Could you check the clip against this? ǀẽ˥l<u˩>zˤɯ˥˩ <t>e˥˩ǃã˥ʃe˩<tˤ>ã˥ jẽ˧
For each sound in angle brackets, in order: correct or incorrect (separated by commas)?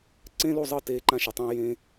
incorrect, correct, correct